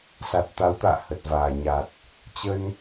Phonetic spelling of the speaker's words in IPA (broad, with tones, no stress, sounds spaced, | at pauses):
s a˨˩ t̚ t̪ a˨˦ w t̪ a̰ː˧˨ h ə˨˩ t̚ v aː˨˩ ɲ a˨˩ t̚ | t͡ɕ ə˧ n